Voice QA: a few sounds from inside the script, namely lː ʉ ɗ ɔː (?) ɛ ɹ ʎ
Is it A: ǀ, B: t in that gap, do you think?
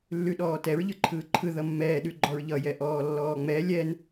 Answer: B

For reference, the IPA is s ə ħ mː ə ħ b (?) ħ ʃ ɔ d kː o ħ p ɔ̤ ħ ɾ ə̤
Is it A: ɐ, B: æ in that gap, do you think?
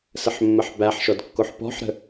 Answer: B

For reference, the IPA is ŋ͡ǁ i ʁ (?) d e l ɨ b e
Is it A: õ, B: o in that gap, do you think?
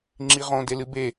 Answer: A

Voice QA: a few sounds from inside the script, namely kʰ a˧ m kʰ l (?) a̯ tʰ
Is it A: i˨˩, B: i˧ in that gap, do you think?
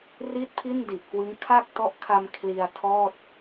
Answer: B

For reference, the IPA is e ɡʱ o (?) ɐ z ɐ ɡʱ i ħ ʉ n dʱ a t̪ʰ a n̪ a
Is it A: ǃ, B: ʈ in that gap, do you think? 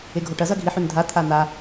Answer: B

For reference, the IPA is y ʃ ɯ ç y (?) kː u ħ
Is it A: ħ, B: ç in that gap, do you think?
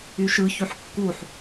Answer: A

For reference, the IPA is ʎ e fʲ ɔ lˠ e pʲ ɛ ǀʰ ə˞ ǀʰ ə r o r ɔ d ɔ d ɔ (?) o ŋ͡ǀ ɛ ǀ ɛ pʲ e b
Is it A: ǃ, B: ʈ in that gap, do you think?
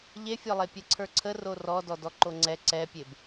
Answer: A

